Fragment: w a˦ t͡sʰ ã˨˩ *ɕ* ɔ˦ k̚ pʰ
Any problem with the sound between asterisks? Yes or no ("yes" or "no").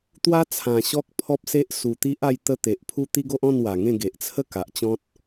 no